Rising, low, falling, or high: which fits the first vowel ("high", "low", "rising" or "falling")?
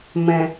low